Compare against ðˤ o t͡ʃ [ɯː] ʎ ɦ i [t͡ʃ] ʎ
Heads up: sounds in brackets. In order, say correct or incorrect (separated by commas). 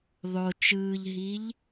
correct, incorrect